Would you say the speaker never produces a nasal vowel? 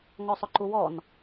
yes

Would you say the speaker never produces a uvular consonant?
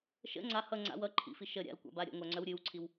yes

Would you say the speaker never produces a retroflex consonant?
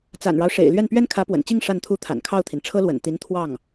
no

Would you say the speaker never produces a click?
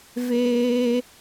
yes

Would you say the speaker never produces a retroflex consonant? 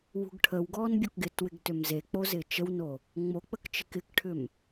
no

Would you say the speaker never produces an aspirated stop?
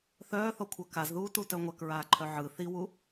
no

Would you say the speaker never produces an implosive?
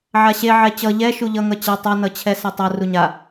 yes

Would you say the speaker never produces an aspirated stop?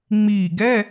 yes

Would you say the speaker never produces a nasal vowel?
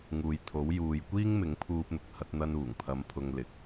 yes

